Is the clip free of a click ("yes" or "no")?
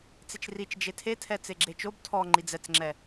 no